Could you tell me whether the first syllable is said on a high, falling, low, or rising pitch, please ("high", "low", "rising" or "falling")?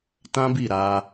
high